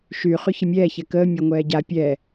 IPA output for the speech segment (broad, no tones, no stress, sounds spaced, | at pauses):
ʃ y χ y ç ə mʲ ɛː ç ɛ k əː mʲ ɤ ŋʷ ɛː ɟ a pʲ ɛː